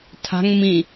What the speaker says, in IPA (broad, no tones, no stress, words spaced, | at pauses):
tʰa̤ŋ mĩ